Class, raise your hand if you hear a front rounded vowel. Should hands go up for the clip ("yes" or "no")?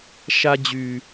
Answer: yes